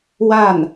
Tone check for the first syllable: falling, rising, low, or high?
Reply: falling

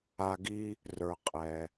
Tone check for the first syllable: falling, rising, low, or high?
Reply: low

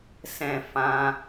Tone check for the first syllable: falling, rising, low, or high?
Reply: high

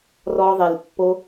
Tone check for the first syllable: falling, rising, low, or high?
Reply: high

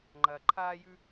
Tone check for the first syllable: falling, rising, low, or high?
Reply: low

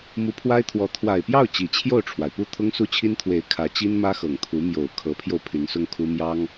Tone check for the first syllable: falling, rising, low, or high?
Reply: rising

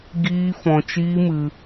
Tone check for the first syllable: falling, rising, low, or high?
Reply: high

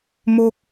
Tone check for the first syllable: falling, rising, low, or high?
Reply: high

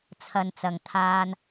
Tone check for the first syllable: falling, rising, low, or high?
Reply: low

